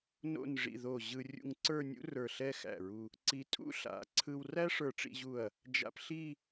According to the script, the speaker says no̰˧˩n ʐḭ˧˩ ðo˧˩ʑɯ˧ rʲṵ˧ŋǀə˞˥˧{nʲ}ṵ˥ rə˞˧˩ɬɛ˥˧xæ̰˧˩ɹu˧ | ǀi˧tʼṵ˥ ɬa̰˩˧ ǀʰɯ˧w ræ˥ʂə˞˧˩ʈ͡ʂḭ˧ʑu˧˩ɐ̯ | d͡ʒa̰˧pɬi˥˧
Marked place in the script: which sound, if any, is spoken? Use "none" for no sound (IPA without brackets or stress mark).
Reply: nʲ